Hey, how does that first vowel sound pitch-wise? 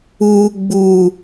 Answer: low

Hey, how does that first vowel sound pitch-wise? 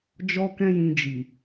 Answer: high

